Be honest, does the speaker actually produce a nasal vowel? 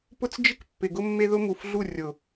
no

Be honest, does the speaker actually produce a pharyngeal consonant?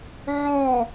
yes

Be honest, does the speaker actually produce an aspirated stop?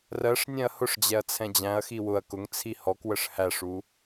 yes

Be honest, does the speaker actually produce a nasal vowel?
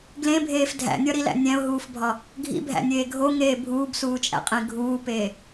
yes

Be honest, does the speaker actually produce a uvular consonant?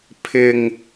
no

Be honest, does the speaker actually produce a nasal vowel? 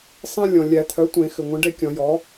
yes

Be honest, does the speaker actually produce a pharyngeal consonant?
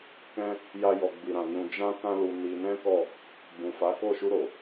no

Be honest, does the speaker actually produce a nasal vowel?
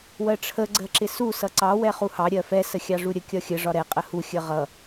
no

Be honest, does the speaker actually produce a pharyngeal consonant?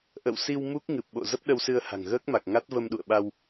no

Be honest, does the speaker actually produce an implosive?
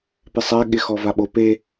yes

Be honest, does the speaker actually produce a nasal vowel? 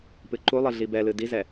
no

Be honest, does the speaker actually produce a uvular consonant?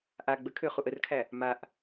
yes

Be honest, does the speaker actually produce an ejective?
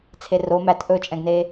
yes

